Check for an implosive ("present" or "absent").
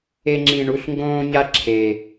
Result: absent